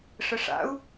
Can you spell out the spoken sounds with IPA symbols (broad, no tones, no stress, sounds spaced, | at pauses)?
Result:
ʂ ə ʂ a̰ u̯